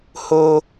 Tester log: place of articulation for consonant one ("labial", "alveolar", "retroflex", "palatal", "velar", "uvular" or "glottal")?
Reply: glottal